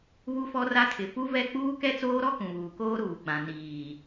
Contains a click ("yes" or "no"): no